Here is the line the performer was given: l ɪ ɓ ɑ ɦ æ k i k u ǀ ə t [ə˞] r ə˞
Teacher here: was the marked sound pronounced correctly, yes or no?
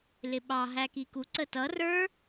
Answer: no